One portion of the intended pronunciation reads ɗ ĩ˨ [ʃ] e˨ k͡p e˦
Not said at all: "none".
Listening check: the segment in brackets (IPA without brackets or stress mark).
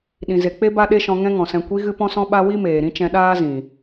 z